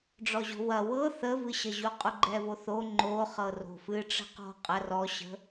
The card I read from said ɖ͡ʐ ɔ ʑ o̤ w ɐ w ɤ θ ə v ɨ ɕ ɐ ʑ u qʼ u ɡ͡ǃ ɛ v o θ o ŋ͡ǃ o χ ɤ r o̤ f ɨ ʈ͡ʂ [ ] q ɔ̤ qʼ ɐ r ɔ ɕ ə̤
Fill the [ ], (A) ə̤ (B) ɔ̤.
A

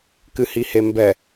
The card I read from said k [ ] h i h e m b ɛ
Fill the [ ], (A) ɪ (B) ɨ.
B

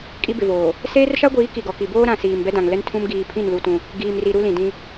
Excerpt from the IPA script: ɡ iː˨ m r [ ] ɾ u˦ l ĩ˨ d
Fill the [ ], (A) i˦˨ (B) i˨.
B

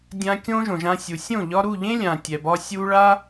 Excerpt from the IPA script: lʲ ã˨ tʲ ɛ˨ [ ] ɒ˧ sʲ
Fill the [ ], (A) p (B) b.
B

